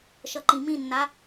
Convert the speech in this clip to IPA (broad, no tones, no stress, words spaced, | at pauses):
ʃʌǃĩmĩnːa